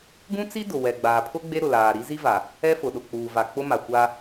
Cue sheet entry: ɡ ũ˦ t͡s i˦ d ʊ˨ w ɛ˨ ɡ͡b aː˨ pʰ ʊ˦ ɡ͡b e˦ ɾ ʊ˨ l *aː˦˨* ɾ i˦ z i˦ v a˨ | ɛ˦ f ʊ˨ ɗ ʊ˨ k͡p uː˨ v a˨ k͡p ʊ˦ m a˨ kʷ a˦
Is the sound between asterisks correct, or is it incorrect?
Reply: incorrect